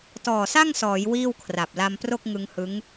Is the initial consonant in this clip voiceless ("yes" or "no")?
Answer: yes